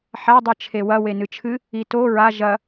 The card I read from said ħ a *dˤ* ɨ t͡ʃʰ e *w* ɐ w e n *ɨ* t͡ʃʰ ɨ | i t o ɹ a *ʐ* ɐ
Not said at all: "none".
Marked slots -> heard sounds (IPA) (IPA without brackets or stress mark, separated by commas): dˤ, w, ɨ, ʒ